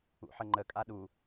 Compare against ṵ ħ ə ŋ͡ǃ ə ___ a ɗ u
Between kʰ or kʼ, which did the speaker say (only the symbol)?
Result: kʼ